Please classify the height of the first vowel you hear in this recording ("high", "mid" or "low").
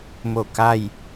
mid